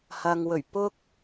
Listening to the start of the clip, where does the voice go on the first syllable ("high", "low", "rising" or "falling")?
low